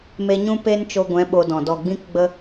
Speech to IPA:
m e˧ ɲ ũ˦ p e˦ n t͡ʃ o˧ ɡʷ ɛ̃˨˦ ɓ o˧ d ɔ̃˨ d ɔ˨ ɡ͡b ĩ˦ k ɡ͡b ə˦

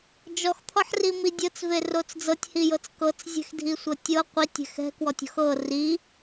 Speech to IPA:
d͡ʒ ɔ x t̪ʰ ɔ ħ r i m i dʲ ɤ t͡s v e r o t͡s d͡z ɤ tʲ h i j ɤ t͡s k ɤ t͡s zʲ ɛ̤ x dʱ i sʷ ɤ tʲ ɤ qʷ i tʲ ɛ̤ x ɛ̤ k w ɔ tʲ ɔ̤ x ɤ r i

